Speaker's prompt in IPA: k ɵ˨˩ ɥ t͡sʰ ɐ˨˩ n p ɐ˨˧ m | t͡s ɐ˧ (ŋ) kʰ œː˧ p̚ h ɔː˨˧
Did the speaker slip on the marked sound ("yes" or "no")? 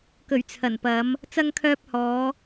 no